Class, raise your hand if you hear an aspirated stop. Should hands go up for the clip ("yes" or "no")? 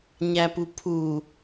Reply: yes